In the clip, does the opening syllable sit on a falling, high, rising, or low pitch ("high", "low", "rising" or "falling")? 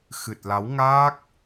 low